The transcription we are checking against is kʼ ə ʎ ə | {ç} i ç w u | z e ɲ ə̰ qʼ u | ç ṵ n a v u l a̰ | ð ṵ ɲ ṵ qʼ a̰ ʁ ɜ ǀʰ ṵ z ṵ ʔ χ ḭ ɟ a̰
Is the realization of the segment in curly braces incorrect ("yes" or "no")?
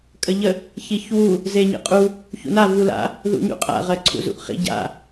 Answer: no